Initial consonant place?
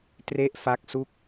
alveolar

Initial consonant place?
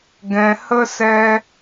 velar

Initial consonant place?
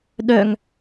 alveolar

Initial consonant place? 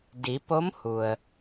alveolar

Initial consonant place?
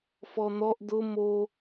labial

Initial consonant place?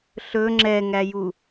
alveolar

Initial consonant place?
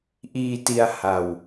glottal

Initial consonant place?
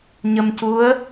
palatal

